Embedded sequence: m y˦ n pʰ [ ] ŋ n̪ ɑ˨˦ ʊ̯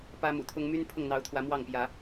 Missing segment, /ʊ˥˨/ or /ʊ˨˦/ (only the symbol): ʊ˥˨